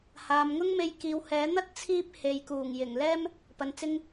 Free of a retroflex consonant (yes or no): yes